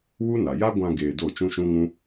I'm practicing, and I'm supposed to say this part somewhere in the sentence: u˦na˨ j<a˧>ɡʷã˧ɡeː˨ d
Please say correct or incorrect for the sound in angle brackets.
incorrect